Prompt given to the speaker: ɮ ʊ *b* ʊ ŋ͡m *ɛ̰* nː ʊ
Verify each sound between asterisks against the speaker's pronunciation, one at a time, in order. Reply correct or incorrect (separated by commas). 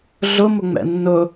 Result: incorrect, correct